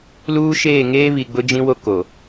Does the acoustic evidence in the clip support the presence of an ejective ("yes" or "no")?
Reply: no